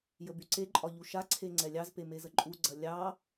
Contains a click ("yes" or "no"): yes